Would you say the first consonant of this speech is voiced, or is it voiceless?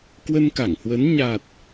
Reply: voiceless